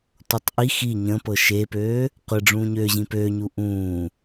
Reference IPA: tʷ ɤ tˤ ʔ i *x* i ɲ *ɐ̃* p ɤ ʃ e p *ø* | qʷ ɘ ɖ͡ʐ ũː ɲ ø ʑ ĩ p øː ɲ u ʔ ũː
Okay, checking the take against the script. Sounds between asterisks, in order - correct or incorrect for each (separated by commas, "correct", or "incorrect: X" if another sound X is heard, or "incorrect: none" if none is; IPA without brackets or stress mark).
correct, incorrect: ə̃, incorrect: øː